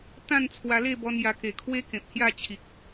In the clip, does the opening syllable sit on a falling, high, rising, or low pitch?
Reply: falling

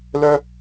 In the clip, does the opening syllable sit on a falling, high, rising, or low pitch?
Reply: high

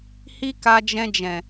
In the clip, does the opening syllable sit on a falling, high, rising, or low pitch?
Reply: high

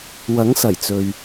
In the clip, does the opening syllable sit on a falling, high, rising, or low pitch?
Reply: rising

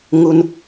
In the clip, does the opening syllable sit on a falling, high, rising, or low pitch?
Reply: high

